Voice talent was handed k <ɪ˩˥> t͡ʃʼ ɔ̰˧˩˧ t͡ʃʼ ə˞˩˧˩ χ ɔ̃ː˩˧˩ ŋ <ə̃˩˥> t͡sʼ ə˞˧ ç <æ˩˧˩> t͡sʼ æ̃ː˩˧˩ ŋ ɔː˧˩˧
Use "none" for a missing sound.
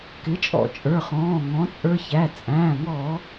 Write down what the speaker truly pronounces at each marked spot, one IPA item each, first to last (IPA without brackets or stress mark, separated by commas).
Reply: ɪ˩˥, ɔ̃˩˥, æ˩˧˩